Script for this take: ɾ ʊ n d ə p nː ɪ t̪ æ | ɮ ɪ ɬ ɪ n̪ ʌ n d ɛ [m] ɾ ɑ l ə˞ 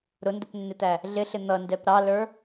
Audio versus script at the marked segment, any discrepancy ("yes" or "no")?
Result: yes